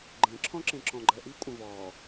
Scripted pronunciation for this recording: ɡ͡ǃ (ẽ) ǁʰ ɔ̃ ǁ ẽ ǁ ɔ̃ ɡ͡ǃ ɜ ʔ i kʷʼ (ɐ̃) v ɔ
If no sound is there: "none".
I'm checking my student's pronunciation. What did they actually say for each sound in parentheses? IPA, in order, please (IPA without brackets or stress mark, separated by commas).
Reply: ẽ, ɐ̃